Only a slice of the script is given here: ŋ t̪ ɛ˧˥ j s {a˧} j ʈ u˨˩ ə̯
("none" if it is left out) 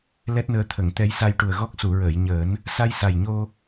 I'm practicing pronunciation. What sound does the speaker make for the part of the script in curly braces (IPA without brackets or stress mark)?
a˧